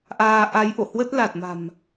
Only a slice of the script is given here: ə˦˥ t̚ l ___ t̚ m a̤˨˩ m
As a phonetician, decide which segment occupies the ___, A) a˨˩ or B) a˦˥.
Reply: A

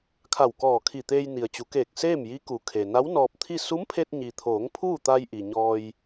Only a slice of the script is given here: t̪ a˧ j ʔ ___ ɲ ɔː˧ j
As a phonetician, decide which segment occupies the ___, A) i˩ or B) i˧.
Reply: A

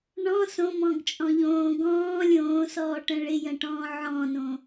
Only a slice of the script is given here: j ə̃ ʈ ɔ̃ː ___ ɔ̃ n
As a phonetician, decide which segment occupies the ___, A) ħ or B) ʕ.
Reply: B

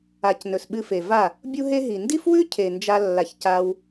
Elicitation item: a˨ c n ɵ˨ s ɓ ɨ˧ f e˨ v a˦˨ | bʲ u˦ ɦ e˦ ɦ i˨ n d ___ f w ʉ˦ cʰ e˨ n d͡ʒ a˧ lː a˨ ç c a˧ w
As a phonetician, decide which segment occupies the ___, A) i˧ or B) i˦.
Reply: B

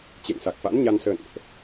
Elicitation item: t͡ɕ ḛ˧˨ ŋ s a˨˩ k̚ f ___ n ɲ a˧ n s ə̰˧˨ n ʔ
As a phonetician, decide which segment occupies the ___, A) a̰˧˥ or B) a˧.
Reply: A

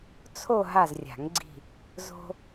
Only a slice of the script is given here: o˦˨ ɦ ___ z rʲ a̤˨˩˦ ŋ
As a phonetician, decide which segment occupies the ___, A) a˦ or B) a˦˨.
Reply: B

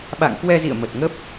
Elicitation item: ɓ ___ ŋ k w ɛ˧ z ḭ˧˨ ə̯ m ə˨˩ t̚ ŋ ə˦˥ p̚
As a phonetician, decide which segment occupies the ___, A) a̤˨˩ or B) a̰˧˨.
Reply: B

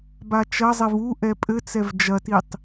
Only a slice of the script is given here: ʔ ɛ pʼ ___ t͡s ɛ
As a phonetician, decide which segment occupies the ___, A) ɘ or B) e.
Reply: A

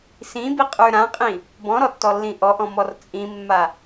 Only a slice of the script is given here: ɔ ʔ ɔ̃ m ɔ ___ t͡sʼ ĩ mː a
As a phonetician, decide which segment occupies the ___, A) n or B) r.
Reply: B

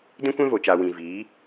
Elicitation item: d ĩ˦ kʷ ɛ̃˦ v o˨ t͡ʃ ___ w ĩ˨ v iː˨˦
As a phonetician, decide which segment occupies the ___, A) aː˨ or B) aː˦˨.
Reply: A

